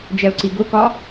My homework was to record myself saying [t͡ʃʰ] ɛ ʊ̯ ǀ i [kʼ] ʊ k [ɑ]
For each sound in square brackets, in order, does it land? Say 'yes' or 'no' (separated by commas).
no, no, no